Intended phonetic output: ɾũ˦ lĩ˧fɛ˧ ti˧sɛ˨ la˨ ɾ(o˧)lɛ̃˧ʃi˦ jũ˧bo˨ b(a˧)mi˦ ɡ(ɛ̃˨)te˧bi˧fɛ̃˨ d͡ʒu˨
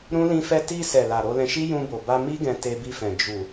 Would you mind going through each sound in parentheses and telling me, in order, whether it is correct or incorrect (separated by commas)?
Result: correct, correct, incorrect